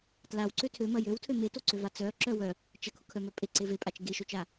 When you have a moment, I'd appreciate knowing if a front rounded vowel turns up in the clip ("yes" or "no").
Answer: yes